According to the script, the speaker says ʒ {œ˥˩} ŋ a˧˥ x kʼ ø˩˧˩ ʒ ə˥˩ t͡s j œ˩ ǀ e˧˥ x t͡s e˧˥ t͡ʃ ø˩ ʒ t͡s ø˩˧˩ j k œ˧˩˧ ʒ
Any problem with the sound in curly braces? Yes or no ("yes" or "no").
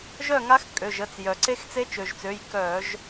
no